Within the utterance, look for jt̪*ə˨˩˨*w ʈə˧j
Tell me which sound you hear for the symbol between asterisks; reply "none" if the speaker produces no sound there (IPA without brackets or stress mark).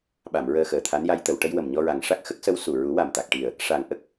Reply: ə˨˩˨